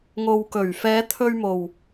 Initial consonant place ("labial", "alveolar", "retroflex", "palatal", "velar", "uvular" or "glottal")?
velar